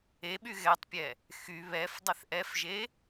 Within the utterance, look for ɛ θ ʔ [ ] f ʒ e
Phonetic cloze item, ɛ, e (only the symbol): ɛ